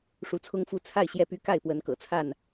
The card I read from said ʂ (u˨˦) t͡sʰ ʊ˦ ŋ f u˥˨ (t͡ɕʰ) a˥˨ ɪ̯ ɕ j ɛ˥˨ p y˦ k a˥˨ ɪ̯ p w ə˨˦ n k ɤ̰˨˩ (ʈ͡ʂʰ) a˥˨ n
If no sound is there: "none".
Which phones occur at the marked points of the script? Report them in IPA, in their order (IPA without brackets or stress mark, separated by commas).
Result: u˨˦, t͡sʰ, t͡sʰ